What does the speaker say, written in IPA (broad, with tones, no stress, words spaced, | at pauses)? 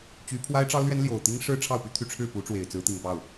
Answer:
t͡ɕy˧˥ pʰwa˥ɪ̯ʈ͡ʂɑ˥ʊ̯lɥɛ˥n ljo˨˩ʊ̯ t̪i˥ŋʂɻ̩˥ ʈ͡ʂʰɑ˥˩ʊ̯py˥t̪ʰy˧˥ ʈ͡ʂʰɻ̩˥˩pu˧˥ʈ͡ʂwe˨˩ɪ̯ t͡sɹ̩˧˥t̪i˨˩ŋpɑ˥˩ʊ̯